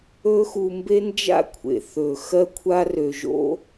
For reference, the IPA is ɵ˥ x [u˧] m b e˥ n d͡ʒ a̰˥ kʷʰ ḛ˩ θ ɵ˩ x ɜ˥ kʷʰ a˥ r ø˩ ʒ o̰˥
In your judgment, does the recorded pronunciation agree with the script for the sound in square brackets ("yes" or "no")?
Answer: yes